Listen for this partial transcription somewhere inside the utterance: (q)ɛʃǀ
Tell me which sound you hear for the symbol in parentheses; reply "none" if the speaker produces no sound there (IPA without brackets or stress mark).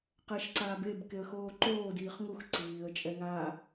q